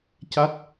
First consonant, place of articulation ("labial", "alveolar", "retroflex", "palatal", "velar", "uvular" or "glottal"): palatal